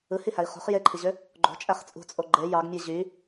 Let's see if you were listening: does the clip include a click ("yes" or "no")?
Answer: yes